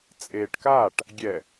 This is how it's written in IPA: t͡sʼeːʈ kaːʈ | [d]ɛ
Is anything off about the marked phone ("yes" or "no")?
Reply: yes